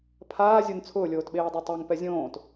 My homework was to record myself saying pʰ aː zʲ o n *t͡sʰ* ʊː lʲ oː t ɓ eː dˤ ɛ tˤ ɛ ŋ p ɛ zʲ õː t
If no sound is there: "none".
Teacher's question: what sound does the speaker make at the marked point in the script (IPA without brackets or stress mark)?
t͡sʰ